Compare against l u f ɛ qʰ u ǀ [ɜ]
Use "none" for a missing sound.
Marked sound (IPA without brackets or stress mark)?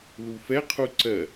ɜ